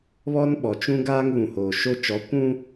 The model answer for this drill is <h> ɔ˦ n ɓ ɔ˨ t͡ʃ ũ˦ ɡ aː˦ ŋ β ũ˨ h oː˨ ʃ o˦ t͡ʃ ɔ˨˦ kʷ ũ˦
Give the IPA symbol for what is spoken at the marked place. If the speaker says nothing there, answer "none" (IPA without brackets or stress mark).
β